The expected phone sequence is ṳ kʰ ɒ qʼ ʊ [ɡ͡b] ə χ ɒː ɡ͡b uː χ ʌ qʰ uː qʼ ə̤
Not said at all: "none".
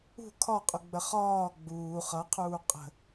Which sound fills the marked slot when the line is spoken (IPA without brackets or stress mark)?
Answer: ɡ͡b